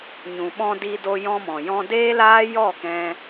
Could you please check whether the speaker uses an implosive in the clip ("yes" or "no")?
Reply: yes